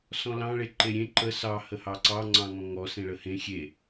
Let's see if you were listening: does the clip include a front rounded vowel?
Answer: no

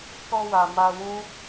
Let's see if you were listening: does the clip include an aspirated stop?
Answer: no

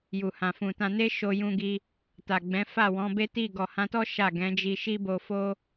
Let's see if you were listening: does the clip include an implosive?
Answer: no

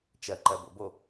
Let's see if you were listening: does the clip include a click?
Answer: yes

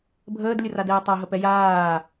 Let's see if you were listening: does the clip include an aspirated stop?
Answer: no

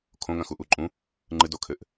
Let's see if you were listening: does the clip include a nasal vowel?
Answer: yes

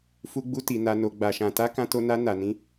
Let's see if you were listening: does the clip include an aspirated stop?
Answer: no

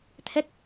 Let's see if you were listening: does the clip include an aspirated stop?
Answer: yes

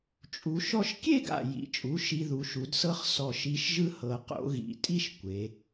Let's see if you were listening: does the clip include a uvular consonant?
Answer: yes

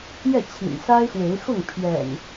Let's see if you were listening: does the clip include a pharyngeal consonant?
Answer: no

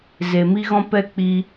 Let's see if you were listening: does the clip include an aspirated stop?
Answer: no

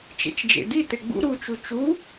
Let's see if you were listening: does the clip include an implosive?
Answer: no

